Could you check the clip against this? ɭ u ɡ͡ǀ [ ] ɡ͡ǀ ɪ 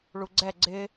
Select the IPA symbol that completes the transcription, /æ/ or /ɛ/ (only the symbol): ɛ